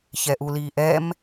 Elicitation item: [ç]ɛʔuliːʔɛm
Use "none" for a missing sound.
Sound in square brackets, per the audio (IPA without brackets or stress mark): ç